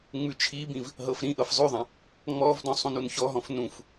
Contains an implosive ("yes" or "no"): no